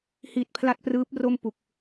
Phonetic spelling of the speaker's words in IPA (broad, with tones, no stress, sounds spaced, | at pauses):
h i˨˩ t̚ pʰ l a˥˩ t̚ p r ɯː˦˥ p̚ r o˥˩ m p u˨˩ k̚